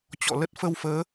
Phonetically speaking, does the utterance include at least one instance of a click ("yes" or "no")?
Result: no